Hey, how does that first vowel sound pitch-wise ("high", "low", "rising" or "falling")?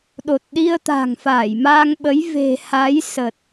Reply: low